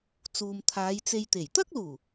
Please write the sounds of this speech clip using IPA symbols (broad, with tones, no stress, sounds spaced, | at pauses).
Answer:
t͡s uː˨ m t̪ʰ aː˨˧ j t͡s e˧ j t̪ e˨˩ j t̪ ɐ˥ k̚ l uː˨˩